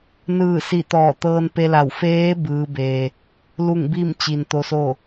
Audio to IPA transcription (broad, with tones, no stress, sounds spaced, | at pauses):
n ɯː˧˩ s i˧˩ t̪ ɔː˧˩ t̪ ɤː˧ n p e˧ l a˧˩ w f eː˧˥ b ɯː˧˥ b eː˧ | l u˥˨ ŋ b i˥˨ m t͡ɕ i˩ n t̪ o˧˥ s o˥˨